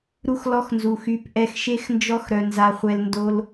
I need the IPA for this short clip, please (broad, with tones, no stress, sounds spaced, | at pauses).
ɾ u˧ x l ɔ˧ x n z u˨ x y˨˦ p ʔ ɛ˧ x ʃ e˦ x n d͡ʒ ɔ˦ x ɾ œ˧ n z a˧ χʷ ɛ˧ l n d o˧ l